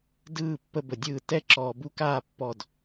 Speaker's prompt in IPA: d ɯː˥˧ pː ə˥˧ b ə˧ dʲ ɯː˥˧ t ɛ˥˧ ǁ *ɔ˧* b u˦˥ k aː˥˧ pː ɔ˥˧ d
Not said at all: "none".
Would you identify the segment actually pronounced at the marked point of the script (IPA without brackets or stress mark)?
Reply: ɔː˧